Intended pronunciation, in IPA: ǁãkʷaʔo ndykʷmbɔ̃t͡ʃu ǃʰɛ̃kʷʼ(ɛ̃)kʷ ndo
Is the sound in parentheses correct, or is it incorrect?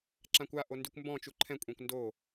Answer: correct